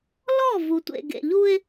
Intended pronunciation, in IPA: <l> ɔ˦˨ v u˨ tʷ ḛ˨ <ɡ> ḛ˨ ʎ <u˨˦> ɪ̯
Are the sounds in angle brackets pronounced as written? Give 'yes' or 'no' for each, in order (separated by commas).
yes, yes, no